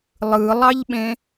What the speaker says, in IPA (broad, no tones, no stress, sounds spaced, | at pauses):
lˠ ɯ lˠ ɑ ʎ ɓ ẽ